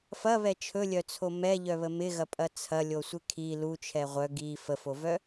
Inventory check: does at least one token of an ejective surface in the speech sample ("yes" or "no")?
yes